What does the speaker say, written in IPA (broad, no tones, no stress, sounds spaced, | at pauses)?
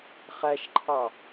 χ æ ʃ ǃʰ ɑ